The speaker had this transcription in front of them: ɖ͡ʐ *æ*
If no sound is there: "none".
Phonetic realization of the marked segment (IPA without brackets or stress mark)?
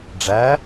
æ